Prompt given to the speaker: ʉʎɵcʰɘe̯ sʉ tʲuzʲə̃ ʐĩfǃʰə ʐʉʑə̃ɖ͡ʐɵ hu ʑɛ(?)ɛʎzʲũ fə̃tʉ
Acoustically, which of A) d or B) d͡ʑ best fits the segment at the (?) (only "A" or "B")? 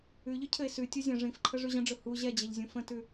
B